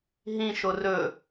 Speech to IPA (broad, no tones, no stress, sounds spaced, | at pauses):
ɦ ĩ ʃ o r ɵ